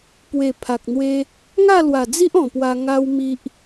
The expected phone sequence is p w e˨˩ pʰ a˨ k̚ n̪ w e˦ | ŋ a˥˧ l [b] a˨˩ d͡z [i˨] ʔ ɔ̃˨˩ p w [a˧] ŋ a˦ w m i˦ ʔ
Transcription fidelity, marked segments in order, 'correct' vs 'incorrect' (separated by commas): incorrect, incorrect, correct